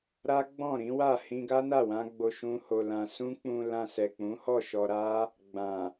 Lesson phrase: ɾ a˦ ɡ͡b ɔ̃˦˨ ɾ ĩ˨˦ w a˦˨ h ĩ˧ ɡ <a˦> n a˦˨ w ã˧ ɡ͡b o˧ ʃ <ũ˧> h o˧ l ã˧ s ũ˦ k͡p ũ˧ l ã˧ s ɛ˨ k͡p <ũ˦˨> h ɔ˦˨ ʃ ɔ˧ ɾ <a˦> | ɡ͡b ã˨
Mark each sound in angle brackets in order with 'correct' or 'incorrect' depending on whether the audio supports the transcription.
correct, incorrect, incorrect, correct

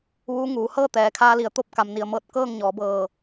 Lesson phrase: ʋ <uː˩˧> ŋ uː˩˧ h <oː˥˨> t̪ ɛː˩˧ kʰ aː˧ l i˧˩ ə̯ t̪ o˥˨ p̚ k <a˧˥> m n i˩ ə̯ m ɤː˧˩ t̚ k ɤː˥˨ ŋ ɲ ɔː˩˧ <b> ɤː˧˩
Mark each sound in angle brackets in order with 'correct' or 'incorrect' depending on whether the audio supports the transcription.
incorrect, incorrect, incorrect, correct

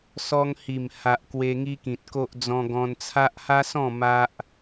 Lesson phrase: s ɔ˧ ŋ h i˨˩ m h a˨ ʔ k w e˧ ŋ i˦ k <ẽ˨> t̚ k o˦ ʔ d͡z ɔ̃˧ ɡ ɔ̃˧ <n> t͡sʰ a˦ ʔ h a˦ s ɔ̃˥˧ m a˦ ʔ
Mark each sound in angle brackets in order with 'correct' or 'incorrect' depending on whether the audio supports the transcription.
incorrect, correct

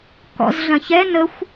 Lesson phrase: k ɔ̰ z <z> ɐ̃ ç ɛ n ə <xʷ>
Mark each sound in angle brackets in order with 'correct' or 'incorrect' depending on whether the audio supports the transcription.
incorrect, correct

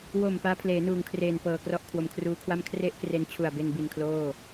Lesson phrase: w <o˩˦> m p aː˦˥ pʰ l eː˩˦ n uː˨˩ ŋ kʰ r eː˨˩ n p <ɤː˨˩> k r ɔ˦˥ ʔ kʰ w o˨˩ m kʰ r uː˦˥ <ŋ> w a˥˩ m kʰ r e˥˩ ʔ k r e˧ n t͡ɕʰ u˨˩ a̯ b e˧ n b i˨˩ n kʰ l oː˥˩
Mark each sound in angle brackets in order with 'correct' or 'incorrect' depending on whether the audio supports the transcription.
incorrect, correct, incorrect

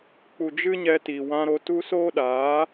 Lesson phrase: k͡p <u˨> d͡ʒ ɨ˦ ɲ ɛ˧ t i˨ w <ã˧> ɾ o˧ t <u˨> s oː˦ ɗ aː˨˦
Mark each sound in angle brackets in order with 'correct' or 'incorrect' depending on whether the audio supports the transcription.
correct, correct, incorrect

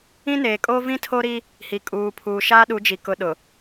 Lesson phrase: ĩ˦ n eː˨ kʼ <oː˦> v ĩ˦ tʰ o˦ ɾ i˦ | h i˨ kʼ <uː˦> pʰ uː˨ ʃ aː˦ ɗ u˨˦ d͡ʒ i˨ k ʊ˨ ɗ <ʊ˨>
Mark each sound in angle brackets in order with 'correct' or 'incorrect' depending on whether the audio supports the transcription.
correct, incorrect, correct

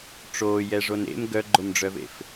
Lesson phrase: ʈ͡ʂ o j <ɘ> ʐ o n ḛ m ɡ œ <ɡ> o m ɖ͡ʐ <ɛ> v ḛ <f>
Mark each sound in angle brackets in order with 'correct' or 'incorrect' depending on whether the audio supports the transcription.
incorrect, incorrect, incorrect, correct

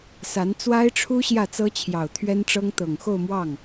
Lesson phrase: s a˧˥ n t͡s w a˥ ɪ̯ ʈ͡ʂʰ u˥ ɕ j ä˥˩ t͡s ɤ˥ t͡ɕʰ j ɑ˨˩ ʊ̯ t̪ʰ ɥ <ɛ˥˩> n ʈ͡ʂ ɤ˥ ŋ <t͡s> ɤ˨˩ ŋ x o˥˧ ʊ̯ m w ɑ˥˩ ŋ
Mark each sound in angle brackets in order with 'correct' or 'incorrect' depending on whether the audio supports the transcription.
incorrect, incorrect

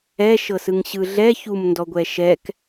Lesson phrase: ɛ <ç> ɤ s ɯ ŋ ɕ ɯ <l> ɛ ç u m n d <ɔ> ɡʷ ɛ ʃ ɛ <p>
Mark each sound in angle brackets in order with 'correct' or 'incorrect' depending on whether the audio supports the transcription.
incorrect, incorrect, correct, incorrect

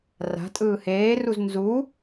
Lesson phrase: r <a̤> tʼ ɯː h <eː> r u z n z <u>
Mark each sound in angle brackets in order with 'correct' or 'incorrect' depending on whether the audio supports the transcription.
correct, correct, correct

